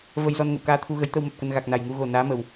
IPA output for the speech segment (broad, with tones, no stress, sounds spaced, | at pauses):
v ə˧ j z ɔ˧ n ŋ ə̰˧˨ w k aː˧ t̪ʰ u˧ ɣ ə˨˦ j t̪ ə˧ w m ə˨˩ p̚ k ə˧ n ɣ a˨˩ k̚ n a˨˩ j ŋ u˧ ɣ o˨˩ n aː˨˦ m ə˨˩ w